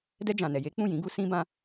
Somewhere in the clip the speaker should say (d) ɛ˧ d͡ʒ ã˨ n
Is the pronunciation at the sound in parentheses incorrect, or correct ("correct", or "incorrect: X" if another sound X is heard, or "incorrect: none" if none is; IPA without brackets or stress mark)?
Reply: correct